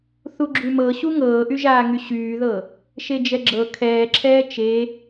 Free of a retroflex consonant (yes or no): yes